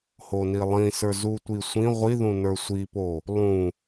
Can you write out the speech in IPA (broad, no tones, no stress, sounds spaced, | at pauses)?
h o n i lˠ ĩ s ə˞ z u tʷ i sʷ ĩ ʁʷ i ð ũ n ə˞ sʷ i p o | lˠ ũ